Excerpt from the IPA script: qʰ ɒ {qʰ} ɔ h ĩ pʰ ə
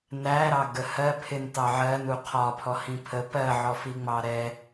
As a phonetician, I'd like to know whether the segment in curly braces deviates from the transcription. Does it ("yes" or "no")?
yes